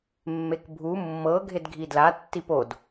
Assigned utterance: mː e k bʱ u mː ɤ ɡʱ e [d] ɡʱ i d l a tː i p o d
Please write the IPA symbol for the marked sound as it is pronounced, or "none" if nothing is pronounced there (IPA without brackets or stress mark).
d